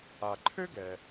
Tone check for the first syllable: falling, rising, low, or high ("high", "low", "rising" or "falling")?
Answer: low